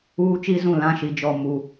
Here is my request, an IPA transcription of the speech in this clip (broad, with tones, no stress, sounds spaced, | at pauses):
uː˦ t͡ʃ i˦ z ũ˦˨ l ã˦ ʃ i˨ d͡ʒ ɔ˦˨ m u˦˨